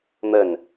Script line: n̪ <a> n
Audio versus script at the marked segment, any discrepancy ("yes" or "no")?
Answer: yes